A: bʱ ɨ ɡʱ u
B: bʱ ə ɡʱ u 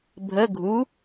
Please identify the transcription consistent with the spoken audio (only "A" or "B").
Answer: B